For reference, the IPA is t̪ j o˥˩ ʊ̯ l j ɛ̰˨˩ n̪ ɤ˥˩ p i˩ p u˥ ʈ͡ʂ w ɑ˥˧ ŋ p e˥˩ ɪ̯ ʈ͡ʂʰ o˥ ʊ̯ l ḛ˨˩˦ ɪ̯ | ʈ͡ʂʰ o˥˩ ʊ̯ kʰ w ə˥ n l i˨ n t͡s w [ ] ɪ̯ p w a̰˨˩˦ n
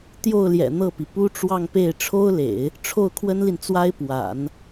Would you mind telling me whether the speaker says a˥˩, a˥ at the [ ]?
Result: a˥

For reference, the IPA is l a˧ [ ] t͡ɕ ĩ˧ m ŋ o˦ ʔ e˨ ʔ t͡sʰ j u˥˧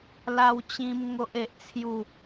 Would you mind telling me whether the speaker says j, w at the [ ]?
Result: w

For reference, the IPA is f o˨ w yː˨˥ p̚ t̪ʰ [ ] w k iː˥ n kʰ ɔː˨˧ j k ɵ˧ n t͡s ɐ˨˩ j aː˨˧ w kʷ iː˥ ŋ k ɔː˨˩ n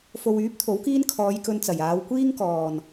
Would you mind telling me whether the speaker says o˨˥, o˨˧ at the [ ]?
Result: o˨˥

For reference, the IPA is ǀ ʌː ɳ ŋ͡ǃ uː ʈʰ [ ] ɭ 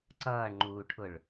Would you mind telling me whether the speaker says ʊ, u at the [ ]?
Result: ʊ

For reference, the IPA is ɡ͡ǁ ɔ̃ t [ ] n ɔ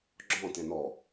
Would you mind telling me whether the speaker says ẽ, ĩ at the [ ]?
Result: ẽ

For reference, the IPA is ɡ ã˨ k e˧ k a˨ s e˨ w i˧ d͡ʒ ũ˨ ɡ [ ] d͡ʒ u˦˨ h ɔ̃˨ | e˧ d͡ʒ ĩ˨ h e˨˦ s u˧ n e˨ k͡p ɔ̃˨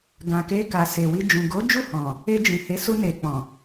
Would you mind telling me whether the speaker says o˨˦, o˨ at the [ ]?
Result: o˨˦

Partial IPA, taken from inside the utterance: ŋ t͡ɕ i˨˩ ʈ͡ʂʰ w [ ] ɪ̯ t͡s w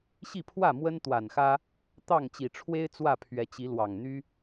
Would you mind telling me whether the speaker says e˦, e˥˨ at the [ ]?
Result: e˦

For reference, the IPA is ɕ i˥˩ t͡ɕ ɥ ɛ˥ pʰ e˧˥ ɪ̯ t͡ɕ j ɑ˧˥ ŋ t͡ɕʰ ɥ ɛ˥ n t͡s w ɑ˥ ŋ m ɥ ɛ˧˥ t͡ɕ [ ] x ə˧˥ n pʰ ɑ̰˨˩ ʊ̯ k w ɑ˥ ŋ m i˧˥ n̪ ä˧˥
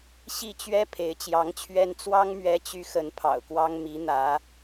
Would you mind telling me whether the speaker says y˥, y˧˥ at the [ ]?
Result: y˧˥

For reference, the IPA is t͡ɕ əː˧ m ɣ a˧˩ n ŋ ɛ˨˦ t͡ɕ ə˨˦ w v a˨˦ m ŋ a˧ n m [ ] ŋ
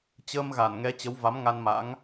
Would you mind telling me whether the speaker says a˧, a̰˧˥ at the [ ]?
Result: a̰˧˥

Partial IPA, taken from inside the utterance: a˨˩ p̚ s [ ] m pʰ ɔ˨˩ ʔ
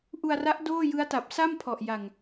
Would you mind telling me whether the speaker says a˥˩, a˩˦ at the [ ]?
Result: a˥˩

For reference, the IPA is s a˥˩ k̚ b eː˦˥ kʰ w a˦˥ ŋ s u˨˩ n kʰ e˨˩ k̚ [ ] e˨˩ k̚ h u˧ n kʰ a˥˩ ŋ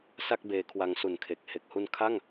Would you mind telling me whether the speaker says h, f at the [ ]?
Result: h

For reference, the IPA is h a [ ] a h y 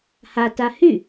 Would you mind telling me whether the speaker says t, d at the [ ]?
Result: t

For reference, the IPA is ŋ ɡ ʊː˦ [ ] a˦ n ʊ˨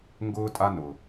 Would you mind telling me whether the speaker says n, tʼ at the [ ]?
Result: tʼ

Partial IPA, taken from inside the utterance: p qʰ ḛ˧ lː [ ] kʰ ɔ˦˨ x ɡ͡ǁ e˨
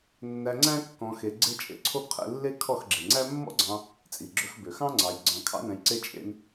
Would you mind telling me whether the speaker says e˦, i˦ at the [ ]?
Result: e˦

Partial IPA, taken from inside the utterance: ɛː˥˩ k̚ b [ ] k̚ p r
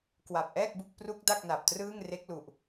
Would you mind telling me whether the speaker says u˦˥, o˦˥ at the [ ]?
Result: u˦˥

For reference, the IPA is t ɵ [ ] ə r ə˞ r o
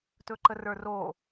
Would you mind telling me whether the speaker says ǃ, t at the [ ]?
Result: ǃ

